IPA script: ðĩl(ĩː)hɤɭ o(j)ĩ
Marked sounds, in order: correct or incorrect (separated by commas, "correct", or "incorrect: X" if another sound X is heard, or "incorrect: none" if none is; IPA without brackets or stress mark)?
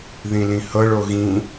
incorrect: ĩ, incorrect: ɣ